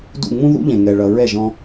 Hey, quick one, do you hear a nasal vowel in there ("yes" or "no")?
yes